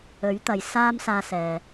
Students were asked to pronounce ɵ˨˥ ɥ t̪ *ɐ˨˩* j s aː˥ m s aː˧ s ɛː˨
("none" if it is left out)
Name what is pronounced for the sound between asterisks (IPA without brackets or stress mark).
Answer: ɐ˨